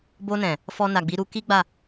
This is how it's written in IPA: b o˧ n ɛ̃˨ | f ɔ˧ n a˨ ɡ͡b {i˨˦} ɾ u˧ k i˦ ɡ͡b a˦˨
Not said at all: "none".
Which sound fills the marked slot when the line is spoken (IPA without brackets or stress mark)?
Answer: i˨˦